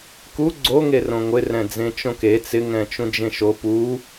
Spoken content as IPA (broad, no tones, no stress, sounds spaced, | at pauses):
k u ɡ͡ǀ o ŋ e r õ ŋʷ ɪ r ɛ̃ d͡z ẽ t͡ʃ õ k e t͡s ɪ ŋ ɛ̃ t͡ʃ ũ d͡ʒ ẽ ʃ o p u